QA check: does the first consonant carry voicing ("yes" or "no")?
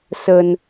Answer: no